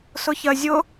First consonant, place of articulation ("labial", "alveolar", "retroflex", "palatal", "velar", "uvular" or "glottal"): alveolar